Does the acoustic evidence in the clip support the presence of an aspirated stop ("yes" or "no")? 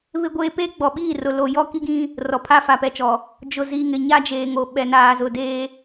yes